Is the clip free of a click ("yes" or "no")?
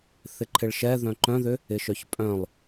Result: no